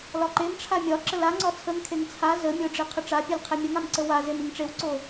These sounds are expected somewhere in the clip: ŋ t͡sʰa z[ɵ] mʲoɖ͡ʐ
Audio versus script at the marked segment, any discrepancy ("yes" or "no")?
yes